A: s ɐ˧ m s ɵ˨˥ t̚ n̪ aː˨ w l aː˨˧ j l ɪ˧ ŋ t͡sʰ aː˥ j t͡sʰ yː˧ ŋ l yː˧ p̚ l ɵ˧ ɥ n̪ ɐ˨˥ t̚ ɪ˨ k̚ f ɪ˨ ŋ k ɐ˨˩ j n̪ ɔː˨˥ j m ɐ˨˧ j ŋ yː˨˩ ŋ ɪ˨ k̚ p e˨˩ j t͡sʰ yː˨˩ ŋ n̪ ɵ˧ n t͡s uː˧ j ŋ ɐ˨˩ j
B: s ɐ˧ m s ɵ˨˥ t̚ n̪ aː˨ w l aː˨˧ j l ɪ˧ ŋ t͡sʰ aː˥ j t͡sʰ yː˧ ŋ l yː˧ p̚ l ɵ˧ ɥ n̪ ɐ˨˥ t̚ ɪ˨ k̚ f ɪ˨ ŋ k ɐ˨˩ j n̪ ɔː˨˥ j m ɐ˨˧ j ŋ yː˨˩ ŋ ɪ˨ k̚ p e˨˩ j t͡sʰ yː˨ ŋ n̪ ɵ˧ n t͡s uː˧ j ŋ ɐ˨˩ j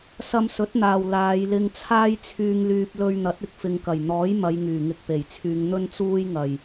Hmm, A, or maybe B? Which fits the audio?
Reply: B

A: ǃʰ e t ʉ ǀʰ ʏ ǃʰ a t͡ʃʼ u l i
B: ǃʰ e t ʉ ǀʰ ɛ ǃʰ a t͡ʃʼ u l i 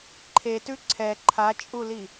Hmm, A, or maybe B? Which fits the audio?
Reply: B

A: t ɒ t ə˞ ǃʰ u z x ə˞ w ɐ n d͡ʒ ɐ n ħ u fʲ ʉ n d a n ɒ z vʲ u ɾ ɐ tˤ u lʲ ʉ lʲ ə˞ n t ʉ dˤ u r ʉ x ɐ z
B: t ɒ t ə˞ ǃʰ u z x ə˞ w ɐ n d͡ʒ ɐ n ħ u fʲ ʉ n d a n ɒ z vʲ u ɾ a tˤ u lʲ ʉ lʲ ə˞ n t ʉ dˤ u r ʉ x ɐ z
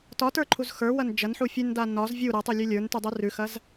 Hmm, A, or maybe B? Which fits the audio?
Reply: A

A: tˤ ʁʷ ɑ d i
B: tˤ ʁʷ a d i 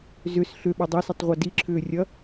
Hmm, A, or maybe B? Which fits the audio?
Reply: B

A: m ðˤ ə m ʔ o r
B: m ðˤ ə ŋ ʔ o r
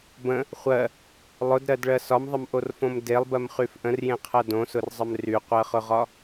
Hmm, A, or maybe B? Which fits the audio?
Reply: A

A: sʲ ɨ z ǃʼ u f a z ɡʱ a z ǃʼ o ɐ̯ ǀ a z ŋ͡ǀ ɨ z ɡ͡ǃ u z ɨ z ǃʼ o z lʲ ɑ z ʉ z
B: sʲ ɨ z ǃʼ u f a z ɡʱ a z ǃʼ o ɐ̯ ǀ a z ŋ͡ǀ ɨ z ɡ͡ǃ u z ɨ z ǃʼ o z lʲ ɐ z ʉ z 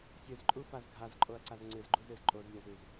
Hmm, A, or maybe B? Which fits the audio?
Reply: B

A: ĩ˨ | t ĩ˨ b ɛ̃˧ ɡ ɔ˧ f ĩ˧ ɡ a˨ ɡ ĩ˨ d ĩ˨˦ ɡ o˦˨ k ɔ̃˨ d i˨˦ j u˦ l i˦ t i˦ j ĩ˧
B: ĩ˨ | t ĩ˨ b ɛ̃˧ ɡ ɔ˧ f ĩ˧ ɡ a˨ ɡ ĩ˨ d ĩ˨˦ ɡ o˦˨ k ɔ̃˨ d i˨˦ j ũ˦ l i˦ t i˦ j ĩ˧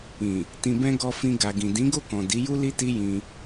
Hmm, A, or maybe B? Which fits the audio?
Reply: A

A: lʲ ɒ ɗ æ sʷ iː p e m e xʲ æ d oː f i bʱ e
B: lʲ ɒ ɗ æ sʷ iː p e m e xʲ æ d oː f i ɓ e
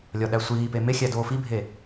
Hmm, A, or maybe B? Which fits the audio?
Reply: A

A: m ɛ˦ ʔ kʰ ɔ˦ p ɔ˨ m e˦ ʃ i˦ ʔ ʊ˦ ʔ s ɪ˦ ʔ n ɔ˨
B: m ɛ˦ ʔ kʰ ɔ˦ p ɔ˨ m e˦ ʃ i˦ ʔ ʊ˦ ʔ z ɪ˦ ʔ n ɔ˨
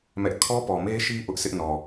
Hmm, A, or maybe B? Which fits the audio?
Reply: A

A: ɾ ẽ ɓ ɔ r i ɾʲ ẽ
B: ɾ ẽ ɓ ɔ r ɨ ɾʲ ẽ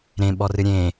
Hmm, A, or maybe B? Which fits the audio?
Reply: B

